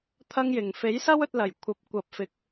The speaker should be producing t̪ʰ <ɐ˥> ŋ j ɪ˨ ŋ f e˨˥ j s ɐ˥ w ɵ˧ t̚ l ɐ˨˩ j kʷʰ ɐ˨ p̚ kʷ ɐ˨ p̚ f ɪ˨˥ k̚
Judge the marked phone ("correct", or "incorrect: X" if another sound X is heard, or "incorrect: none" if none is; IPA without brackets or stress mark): correct